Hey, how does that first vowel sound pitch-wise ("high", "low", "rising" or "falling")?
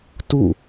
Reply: falling